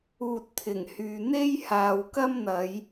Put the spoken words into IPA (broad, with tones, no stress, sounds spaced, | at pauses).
uː˨ t̚ t̪ʰ ɪ˨˩ ŋ h yː˨ n̪ e˥ j h aː˨ w k ɐ˥ m n̪ ɐ˨˧ j